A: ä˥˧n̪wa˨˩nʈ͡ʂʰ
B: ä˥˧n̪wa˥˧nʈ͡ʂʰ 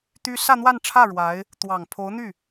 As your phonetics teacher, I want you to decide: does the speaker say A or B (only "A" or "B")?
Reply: B